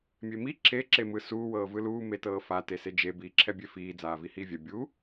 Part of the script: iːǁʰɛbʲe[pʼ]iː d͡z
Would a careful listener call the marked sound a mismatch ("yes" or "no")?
yes